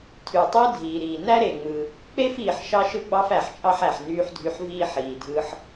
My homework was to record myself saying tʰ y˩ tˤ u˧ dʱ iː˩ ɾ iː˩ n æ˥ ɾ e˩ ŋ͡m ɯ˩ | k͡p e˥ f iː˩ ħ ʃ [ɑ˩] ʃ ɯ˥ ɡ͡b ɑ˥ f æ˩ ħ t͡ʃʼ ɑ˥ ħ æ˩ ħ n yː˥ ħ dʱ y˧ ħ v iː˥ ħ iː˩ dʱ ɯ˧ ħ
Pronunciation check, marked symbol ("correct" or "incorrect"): incorrect